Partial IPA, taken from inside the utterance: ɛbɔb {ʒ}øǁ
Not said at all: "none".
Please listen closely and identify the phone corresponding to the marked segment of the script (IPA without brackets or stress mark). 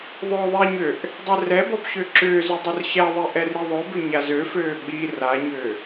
ɕ